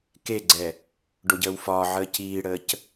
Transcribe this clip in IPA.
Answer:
k e ɡ͡ǀ ɛ | ɖ o ɟ əː w f ɒː ʕ əː c iː ɽ əː c

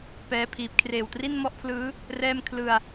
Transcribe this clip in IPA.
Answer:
p ɛː˦˥ pʰ iː˨˩ p̚ kʰ r eː˨˩ w t r i˥˩ n m ɔ˥˩ ʔ pʰ l ɯː˦˥ | r ɛː˥˩ m kʰ l ɯ˧ a̯

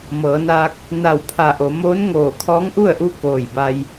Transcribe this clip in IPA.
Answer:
m ɤː˩˧ n aː˧ k̚ | n a˧˩ w pʰ a˧˩ ʔ o˩˧ m oː˧˥ n ŋ oː˧˩ kʰ ɔː˧˥ ŋ ʔ u˥˨ ə̯ ʔ u˧ k oː˧˩ j b a˧ j

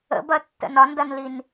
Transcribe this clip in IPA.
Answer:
ə̰ b ɐ tː ə̰ n ɒ n d ɐ n l i n

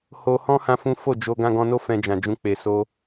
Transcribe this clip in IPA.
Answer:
h o˧ h ɔ̃˦ h ã˦ f ũ˦ f o˦˨ d͡ʒ o˧ ɡ ã˧ ɡ ɔ̃˧ n o˦ f ɛ̃˧ d͡ʒ ã˨ d͡ʒ ũ˧ k͡p e˨ s o˧

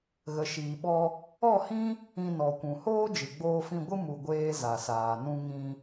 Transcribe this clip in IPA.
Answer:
ɣ ə˨ ʃ iː˨ ɓ ɔ˧ | ɔ˦˨ h ĩ˦ | ĩ˧ n ɔ˨ kʷ ũ˨ h oː˦ d͡ʒ ɨ˨ ɡ͡b oː˧ f ĩ˧ ɡʷ ɨ˦ m u˧ ɡʷ eː˦ z a˨ s aː˨ n ũ˧ ŋ ĩ˧

